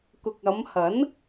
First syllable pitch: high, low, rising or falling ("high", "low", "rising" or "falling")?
low